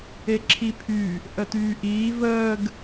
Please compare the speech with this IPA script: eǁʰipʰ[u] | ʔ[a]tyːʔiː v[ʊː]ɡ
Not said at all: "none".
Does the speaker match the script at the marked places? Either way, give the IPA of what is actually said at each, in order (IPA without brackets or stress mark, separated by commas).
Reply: y, ə, əː